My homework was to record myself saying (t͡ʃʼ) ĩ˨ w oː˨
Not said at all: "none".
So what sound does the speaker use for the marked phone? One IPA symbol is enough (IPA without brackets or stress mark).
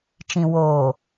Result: t͡ʃ